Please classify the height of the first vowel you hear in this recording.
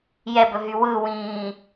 mid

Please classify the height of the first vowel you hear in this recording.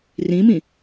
high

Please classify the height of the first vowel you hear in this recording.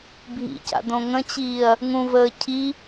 high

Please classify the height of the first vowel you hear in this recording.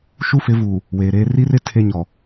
high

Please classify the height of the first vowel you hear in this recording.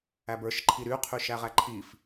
low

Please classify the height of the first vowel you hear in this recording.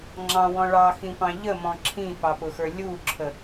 low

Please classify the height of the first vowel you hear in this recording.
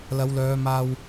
low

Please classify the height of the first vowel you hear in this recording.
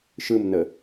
high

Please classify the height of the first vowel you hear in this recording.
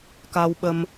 low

